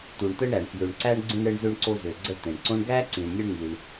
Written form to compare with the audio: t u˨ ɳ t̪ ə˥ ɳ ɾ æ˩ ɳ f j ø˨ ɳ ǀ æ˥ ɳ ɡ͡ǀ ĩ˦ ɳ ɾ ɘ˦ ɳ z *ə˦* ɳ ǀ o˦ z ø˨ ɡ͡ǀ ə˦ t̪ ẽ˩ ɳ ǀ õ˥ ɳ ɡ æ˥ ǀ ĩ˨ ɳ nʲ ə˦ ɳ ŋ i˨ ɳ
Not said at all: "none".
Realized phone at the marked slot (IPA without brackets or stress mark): ø˦